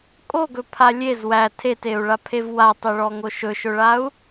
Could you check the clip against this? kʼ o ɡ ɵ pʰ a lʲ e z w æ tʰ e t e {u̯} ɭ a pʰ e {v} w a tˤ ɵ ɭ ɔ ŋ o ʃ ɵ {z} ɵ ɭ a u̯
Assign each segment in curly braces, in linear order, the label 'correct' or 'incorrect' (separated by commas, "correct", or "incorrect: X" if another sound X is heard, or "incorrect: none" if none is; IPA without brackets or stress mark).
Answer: correct, correct, incorrect: ʃ